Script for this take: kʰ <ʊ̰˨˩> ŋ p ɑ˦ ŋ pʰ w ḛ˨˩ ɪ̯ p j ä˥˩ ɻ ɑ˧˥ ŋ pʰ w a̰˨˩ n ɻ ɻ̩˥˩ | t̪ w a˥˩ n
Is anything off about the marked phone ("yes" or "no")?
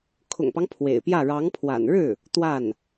no